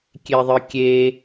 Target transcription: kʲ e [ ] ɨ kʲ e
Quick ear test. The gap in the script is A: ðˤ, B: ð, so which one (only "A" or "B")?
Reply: A